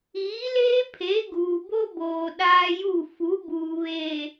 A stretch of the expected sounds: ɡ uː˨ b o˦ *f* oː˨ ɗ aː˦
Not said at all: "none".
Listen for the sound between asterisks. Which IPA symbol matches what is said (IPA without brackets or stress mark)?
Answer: b